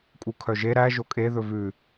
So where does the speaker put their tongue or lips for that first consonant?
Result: velum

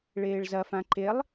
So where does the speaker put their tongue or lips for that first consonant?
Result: retroflex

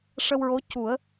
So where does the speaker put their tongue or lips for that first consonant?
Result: retroflex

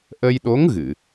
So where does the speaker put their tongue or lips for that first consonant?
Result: throat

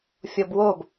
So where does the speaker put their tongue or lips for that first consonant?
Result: lips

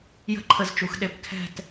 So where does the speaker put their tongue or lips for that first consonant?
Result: palate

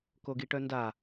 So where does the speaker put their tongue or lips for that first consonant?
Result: velum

